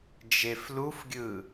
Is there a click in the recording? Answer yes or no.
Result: no